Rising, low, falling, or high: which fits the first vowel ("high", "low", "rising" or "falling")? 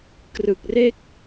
low